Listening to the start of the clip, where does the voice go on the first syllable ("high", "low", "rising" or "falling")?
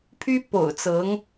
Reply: high